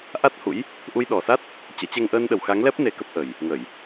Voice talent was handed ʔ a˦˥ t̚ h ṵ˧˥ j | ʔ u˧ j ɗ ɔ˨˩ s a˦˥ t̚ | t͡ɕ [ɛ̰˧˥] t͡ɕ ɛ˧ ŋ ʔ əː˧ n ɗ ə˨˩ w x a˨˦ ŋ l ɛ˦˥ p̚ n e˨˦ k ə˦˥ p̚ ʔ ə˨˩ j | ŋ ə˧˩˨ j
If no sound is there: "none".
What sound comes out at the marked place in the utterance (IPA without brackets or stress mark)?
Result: ɛ̰˧˥